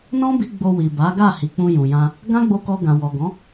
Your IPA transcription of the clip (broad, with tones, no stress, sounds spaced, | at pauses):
n ɔ̃˦ b i˧ ɡ͡b o˧ w i˨ b a˨˦ ɡ a˦˨ h i˨ k͡p ũ˧ j ũ˨ j ã˧ | ɡ ã˦ ɡ͡b o˧ k ɔ˧ ɡ ã˨ w ɔ˨ ɡ ɔ̃˨˦